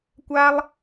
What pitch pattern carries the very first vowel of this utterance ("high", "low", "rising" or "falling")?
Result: high